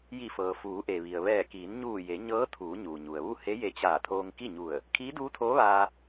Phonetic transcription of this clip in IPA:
j i˧˩ f ɤː˩ f uː˩˧ ʔ e˩ ʋ i˩ ə̯ ʋ ɛː˧˩ k iː˩˧ n ɲ uː˧˩ j e˩˧ ɲ ɤː˧˥ t̪ʰ uː˩˧ ɲ uː˩ ɲ u˩ ə̯ ʋ u˥˨ h e˧˥ j e˧ t͡ɕ aː˧˩ t̪ʰ oː˧ ŋ k i˥˨ ɲ u˧˩ ə̯ | kʰ iː˧˥ d uː˧˥ t̪ʰ oː˧˥ ʋ aː˧

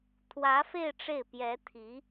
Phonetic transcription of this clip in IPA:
t̪ʰ w ä˧˥ f e˥˧ ɪ̯ ʈ͡ʂ e˥˩ ɪ̯ p j ɛ˧˥ t̪ʰ i˧˥

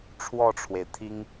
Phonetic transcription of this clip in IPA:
ʈ͡ʂʰ w ɔ˥˩ ʈ͡ʂʰ w e˩ ɪ̯ t̪ʰ i˥ ŋ

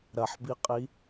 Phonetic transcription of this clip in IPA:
ɾ ɐ ħ b i qʼ i

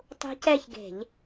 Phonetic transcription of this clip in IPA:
tˤ ṳ˦˥ c ɛ˥˧ ç ɡ e̤˧˩˧ ʎ

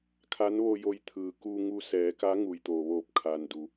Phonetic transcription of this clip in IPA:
kʰ a˧˥ n ʋ o˧ j o˧ j t̪ʰ ɯː˩ k uː˧ ŋ u˧ s ɛː˩˧ k a˧˥ ŋ u˩ j t̪ o˩ ʋ oː˧˩ p̚ kʰ a˩ n d u˩

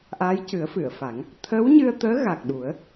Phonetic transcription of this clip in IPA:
ʔ aː˧˥ j c ɨ˨˩˦ ə̯ f ɨ˨˩˨ ə̯ f a˨˩˦ ŋ | t̪ʰ əː˧˥ w ɲ ɨ˧ ə̯ t̪ əː˧˥ ɣ a˨˩ k̚ ɗ u˨˩˦ ə̯

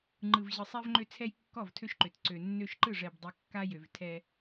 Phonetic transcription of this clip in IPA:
ŋ͡ǃ ɯ˨ v ʑ ɯ˨ sˤ ɛ˦ v ŋ͡ǃ ø˦ t͡sʰ ɛ˦ j kː ɔ˦˨ v tʰ ø˦ ʃ ǃ ø˨ t ǀ ø˨ nː ø˦ ʃ ǃ ɯ˦˨ ʐ ɛ˨ b dˤ ə˨ kː a˦ j ø˨ v tʰ ɛ˦

